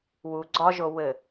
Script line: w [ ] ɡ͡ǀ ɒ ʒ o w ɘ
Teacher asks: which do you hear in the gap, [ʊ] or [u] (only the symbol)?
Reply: u